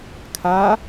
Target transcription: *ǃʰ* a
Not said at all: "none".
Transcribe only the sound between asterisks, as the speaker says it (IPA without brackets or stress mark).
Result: kʰ